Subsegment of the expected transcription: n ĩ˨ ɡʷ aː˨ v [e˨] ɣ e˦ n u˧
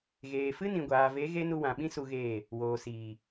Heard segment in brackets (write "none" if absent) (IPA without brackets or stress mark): e˨˦